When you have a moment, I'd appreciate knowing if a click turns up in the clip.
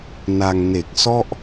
no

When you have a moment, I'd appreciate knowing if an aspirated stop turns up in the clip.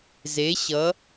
no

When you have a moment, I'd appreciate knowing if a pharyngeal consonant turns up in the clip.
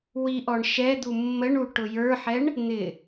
yes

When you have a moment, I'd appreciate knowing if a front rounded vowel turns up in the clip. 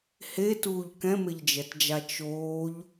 no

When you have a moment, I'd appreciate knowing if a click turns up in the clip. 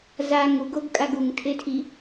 no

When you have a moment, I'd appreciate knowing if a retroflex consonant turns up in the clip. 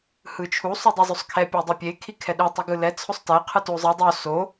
no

